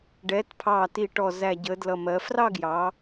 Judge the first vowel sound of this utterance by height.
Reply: mid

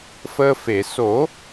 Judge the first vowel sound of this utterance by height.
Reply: mid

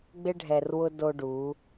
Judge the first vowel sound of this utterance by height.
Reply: high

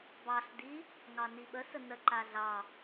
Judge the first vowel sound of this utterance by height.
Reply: low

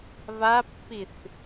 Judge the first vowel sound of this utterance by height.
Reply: low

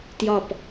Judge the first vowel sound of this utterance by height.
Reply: low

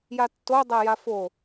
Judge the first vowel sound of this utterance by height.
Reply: low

